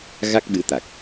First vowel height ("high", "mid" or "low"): low